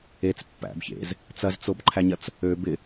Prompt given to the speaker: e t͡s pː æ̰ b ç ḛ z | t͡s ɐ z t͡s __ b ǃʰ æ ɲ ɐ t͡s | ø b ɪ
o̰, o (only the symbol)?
o